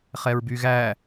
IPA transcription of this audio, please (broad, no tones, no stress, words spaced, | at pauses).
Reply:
χɛɹbyɣæ